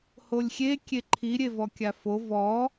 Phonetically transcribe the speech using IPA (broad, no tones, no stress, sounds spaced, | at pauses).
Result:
h o lʲ xʲ e kʲ e ǃʰ i ɾʲ e v ɔ kʲ a f o v ɔ